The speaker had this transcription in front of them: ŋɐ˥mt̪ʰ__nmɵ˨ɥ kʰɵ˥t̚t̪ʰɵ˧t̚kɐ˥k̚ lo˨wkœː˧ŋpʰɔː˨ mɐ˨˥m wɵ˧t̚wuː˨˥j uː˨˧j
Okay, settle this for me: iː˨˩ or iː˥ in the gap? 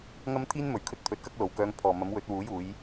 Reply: iː˥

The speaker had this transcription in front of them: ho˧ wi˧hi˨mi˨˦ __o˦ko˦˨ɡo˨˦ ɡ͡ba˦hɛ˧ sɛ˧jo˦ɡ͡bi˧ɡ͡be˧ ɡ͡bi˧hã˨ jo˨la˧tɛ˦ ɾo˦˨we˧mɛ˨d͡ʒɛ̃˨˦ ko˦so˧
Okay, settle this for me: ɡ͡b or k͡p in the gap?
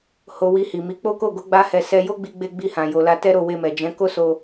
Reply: k͡p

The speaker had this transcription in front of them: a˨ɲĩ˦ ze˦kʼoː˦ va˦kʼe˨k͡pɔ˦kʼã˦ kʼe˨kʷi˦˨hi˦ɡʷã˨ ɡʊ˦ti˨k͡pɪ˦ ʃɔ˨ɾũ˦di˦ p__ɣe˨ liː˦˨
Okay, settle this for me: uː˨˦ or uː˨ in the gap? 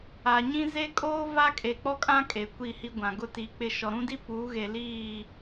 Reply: uː˨˦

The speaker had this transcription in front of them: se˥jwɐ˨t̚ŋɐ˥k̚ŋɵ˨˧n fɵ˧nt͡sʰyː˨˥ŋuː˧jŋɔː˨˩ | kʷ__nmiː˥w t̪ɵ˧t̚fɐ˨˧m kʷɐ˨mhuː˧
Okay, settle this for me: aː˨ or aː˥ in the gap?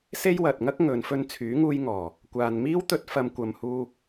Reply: aː˨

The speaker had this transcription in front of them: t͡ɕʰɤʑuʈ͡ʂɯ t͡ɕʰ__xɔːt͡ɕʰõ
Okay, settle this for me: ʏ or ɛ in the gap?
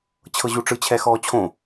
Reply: ɛ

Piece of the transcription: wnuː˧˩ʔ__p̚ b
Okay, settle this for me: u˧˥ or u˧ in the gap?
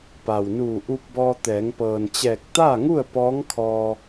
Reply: u˧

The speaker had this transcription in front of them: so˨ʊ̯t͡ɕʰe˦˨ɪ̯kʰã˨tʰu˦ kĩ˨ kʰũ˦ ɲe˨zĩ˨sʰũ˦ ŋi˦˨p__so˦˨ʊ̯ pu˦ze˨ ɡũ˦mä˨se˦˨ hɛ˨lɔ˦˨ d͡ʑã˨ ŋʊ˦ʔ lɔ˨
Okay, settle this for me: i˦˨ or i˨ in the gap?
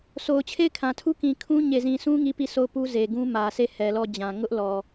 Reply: i˦˨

